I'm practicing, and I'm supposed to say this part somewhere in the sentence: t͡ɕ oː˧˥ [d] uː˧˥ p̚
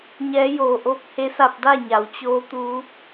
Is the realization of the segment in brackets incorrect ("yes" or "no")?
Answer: yes